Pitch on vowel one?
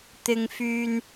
high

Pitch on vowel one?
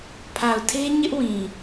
low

